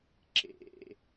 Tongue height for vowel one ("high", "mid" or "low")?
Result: mid